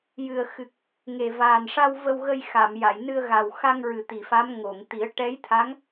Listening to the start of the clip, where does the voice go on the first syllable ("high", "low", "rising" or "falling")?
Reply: low